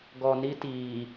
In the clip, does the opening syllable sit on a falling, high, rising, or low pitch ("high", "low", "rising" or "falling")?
low